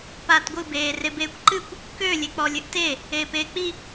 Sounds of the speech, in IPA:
p aː t ɡʷ ɨ b eː r e b eː kʷ ǃ ɨ kʷ | k ø lʲ e k͡p ɔ lʲ ɨ ʔ t e | eː p eː k͡p i

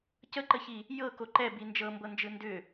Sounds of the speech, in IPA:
c ə ǃ ə ç i | j ɤ k o ǃ ɛ b i n d͡ʒ ɤ m b ɤ n d͡ʒ ɯ n d ʏ

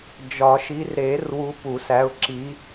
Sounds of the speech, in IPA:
d͡ʒ ɒ˨˩˦ ʃ i˨˦ r ɾ e˨˩˦ r w u˨˦ p u˨˩˦ s æ˨˦ ʊ̯ ǁ i˨˦

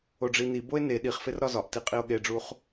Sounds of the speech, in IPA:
o ɖ͡ʐ i n i b o e̯ n e ɗ i χ f e r ɾ ɒ z ɒ ʔ t i qʼ i o̯ ɠ e ɖ͡ʐ u χ

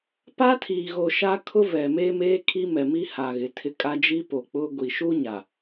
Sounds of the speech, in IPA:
p a˦ tʰ iː˨ ɣ o˨ ʃ a˦ kʰ ʊ˦ v ɛ˨ m e˦ m eː˦ kʰ i˦ m ɛ˨ m i˦ h a˨ ɣ ɪ˨˦ tʰ ɪ˦ kʼ a˦ d͡ʒ i˦ p o˨ k͡p ʊ˦ ɡʷ i˨ ʃ u˦ ɲ a˨

